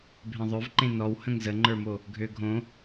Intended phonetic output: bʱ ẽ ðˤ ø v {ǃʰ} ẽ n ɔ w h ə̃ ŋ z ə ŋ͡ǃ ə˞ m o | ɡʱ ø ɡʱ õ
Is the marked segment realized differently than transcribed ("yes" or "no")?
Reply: yes